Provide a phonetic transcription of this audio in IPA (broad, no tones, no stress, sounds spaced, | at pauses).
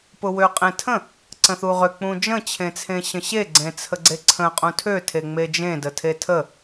p ʊ w ø qʼ ẽ tʰ ə̃ | ǀ ə̃ θ u ʁ ø k͡p ũ d͡ʒ ə̃ t͡ɕʰ ẽ t͡sʰ ẽ ɕ ə̃ ɕ e ɡ͡ǀ ẽ t͡sʰ ə ɡ͡ǀ e ǀʰ ə̃ qʼ ũ tʰ ø tʰ e ŋ͡m e d͡ʒ ẽ d ə tʰ e tʰ ə